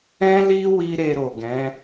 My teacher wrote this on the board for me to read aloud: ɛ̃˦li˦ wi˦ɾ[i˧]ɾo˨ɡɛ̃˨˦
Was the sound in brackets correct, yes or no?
no